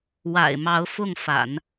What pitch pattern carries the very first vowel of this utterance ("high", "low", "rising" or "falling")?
low